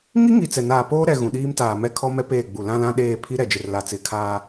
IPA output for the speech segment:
ŋ i˦ ŋ i˨ t͡s ɛ˨ n aː˨ p oː˦ ɾ ɛ˨ ɣ ũ˨ ɗ iː˦ m t aː˨ m ɛ˦˨ kʰ ɔ˦ m ɛ˦ p eː˦˨ ɡ͡b u˨ l ã˦ l ã˦ ɗ eː˦˨ pʰ i˦ ɾ ɛ˨ d͡ʒ ɪ˨ r l a˨ t͡s ɪ˨˦ kʰ aː˦

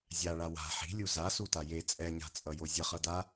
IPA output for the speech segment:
zʲ a ɭ a w a̤ ħ i̤ lʲ u z a s u t a j e t͡sʼ ɛ ɲ a̤ t͡sʼ ʌ j o zʲ ʌ χ ʌ d a

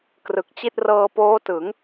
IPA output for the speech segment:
k r ɯ˨˩ k̚ t͡ɕ i˥˩ t̚ r ɤː˧ p oː˦˥ t ɯ˩˦ ŋ

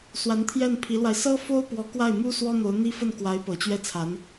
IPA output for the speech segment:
s w a˧˥ n t̪ʰ j ɛ˥˩ n pʰ i˧˥ l w a˧ ɪ̯ s ɤ˥ f o˥ ʊ̯ p w ɔ˧˥ k w a˥˩ ɪ̯ m u˥ s w ɔ˥ n̪ o˧˥ ʊ̯ n̪ i˥ f ə˥˩ n k w a˧˥ ɪ̯ p ɤ˨˩ t͡ɕ ɥ ɛ˥˩ t͡sʰ a˧˥ n

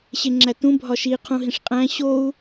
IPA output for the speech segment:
ɕ e ŋ͡ǁ æ t ũ bʱ ɒ ʃ i qʰ ũ ɦ ĩ ʂ qʼ æ̃ ɕ o u̯

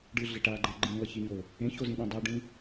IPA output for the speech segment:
ɖ ɯ ɮ e ʈ a ɡ͡ǃ ɛ ɡ͡ǃ ĩ l ʌ ç i ɲ o | ẽ ç o z ĩ ɗ ĩ dˤ u ɖ ĩ

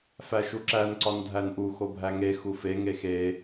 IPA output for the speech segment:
f æ ʃ u ǁ æ n ǀ ɒ n dʱ æ n ʔ u x o bʱ æ ŋ e x u f e ŋ e x e

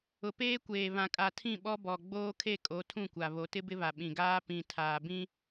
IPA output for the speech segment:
ʊ˨ p eː˦ kʷ eː˨ β ã˨ kʼ a˨ tʰ ĩ˦˨ ɓ ɔ˦ b ɔ˨ ɡ͡b oː˦ kʰ e˦˨ kʼ o˨˦ tʰ ũ˦˨ kʷ a˨ β o˨˦ t ɪ˦ b ɪ˦ β a˨ ɓ ĩ˨ ɡ aː˦ p ĩ˨ tʰ aː˨ b ĩ˦

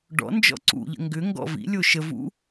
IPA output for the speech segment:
ɖ ɔ̰ n d͡ʒ ɔ̰ ǀ ṵ ʎ ə̰ ŋ ɡ ʏ ŋ ɡ ɔ̰ v ḭ lʲ o ʃ ə v ṵ

